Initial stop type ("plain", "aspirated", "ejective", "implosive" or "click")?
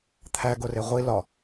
aspirated